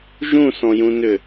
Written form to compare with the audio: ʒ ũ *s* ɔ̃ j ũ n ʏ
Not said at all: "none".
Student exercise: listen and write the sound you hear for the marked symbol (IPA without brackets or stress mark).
s